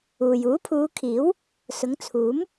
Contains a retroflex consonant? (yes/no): no